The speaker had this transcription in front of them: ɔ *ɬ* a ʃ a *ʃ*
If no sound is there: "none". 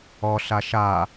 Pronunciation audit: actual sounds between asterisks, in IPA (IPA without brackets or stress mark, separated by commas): ɬ, none